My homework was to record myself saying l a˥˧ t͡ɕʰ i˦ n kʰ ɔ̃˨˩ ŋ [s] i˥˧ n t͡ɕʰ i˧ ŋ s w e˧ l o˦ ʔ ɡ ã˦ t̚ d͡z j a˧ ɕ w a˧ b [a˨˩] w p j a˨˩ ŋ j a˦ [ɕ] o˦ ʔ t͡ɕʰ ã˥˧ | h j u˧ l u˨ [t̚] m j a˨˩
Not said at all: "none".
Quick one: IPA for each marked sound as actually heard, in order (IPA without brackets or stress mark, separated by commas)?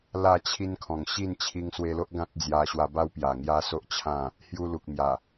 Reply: ɕ, a˦, s, k̚